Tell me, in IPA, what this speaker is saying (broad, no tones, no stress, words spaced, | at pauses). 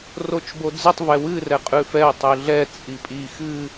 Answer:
rot͡ʃbod͡zɨtˤ vɛwɨ rɛqʼʉfɛʊ̯ tˤʉɮɛ t͡sʼipʼi xɨ